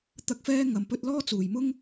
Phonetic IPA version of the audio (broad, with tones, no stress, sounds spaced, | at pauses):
t̪ ɐ˥ k̚ f ɛː˥ ŋ ɐ˧ m p ɵ˥ t̚ l ɔː˥ t͡s uː˨ j m ʊ˥ ŋ